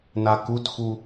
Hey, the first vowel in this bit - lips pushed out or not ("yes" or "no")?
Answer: no